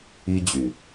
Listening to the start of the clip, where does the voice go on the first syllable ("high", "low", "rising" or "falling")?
high